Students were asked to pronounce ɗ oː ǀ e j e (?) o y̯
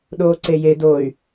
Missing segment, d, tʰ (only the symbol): d